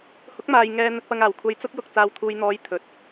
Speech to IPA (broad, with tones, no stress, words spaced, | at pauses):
hʊ˨˥k̚maː˨j ŋɛː˨ n̪ɵ˨t̚pɐ˨ŋaː˨˩w kʷʰɐ˧jt͡sʊ˥k̚jʊ˨k̚ t͡saː˨wt̪ʰuː˨jn̪ɔː˨˧j t̪ʰɵ˨t̚